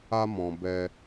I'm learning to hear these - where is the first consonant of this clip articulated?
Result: lips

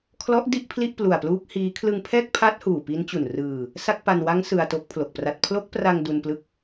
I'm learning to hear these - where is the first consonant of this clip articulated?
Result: velum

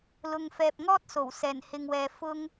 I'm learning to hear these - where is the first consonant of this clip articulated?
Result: tongue tip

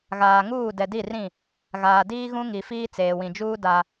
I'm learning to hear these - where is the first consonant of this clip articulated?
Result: velum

